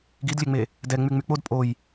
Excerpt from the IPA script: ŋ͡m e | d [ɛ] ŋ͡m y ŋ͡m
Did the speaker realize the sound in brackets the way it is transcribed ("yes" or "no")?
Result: yes